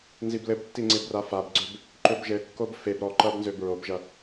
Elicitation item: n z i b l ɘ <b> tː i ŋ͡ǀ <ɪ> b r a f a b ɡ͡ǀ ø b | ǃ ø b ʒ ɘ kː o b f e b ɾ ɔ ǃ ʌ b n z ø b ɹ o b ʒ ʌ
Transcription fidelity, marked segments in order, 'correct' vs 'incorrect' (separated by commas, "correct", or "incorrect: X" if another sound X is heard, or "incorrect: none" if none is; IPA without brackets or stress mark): correct, correct